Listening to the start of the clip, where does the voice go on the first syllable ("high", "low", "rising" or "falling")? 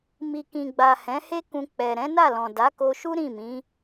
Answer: low